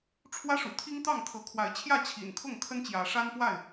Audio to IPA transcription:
ʈ͡ʂʰ w ä˦ ʂ ṵ˨˩ t̪ʰ i˦ ŋ t̪ ɑ˥˨ ŋ t̪ʰ ɤ˨˦ kʰ w a˨˦ ɪ̯ t͡ɕʰ j ä˥˨ t͡ɕʰ ḭ˨˩ n kʰ ʊ˥˨ ŋ kʰ ə˦ n t͡ɕ j ä˨˦ ʂ a˦ n p w a˥˨ ɪ̯

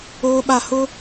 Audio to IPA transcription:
oː˦ ɓ a˦˨ h ʊ˦

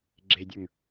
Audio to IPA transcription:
ɡ͡ǁ e dʲ ə˞ ŋ

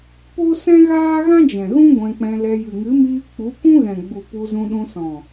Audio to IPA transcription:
p o˦ s ɛ̃˦ ɣ aː˦ ɣ ã˦ d͡ʒ ɛ̃˨ ɣ ũ˦ ɡʷ ɛ̃˧ k͡p ɛ̃˧ l ɛ˧ j ɨ˨ ŋ ɨ˨˦ m iː˧ k͡p u˨˦ kʷ ũ˦ ɣ ɛ̃˨ ɡ͡b u˨ p u˧ z ũ˧ ɗ ũ˧ s ɔ̃˨

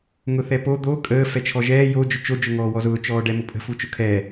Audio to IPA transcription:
ŋ ʊ θ ɛ p o d̪ o kʼ əː f ɛ t͡ʃʰ ɔ ʒ ɛː j o d͡ʒ ʊ t͡ʃ o d͡ʒ ʊ ŋ ɔː w ɔ z ʊː t͡ʃ ɔː ɖ ɛ m ʊ pʼ ə̤ f u t͡ʃ ʊ kʰ ɛː

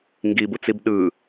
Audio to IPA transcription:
ŋ ɡ i b u t͡s i b ɗ ɯ

